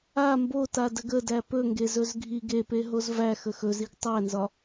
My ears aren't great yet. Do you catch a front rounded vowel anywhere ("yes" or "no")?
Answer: no